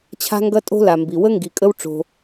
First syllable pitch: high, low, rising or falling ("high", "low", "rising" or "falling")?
high